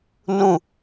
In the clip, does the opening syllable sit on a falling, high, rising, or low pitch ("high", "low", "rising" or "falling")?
falling